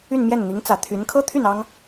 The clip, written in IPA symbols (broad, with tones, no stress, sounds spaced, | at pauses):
y˥˧ n m j ɛ˥˩ n n̪ i˧˥ ŋ t͡s ä˨˩ t̪ʰ y˧˥ n kʰ ɤ˥ t̪ʰ y˥˩ n ɑ˥ ŋ